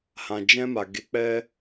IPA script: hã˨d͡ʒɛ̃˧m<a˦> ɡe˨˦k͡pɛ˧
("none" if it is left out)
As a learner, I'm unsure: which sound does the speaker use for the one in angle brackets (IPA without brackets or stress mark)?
a˨